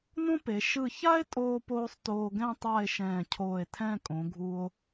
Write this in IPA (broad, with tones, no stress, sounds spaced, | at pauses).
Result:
n õ˥ p e˩˧ ʃ ɯ˧˩ ç a˥ e̯ tʼ oː˧ p oː˧ sˤ t oː˧ ɡ ɛ̃˥˧ tˤ a˥˧ e̯ ʃ ɛ̃ː˧˩ cʰ oː˧˩ e̯ tʰ ɛ̃˥˧ kʼ õ˩˧ ɡʱ u˧ o̯